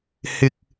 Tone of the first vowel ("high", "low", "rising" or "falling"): high